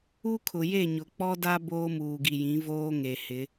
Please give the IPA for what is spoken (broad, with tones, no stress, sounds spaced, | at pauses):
u˦ kʰ ʊ˨ j e˦˨ ɲ ʊ˨ k͡p ɔ˦ d a˦ b oː˦ m uː˨ ɡ i˨ j ĩ˨˦ v oː˦ ŋ e˨ h ɪ˨˦